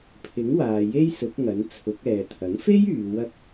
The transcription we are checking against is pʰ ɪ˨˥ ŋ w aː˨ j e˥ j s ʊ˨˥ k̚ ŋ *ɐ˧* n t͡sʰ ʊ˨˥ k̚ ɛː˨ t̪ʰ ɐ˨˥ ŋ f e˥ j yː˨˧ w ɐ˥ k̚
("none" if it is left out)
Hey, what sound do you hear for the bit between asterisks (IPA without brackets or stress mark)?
ɐ˨˥